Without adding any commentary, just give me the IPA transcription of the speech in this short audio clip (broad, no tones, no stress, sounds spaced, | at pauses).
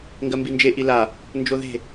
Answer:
ŋ ɡ ɜ m b i n d͡ʒ e ʔ i l a | n d͡ʒ o ð e̤